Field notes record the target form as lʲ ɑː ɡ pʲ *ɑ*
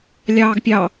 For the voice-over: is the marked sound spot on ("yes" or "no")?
yes